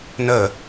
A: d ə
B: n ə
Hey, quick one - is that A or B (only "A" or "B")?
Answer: B